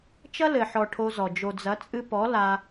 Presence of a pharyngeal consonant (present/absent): present